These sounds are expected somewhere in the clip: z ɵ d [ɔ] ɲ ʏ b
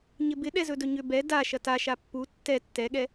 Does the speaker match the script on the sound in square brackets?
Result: no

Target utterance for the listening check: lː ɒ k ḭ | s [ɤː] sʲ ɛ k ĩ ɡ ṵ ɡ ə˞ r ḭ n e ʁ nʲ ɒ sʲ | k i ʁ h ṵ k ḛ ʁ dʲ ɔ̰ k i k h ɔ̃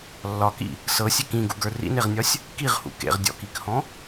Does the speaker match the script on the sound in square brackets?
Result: no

